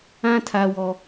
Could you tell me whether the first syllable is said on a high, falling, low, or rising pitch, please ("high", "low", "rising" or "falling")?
high